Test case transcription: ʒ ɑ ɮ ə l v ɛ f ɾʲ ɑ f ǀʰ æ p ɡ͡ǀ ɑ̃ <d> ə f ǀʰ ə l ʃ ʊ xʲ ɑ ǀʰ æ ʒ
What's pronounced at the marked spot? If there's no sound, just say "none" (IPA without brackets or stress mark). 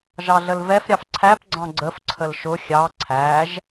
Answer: ɡ͡ǀ